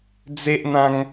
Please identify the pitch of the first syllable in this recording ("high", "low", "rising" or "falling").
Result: high